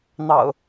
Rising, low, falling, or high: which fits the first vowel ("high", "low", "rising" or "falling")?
low